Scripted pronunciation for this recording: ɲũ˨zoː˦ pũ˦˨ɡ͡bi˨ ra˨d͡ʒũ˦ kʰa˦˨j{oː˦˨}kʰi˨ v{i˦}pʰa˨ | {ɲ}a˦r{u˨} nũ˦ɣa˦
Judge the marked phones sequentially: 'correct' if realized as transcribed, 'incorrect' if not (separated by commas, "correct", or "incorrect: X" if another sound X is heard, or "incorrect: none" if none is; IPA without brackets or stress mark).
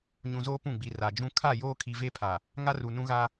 incorrect: oː˦, incorrect: e˦, incorrect: ŋ, correct